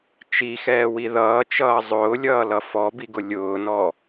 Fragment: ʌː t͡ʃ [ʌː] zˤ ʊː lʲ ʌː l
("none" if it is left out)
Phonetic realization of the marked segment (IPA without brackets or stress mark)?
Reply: ʌː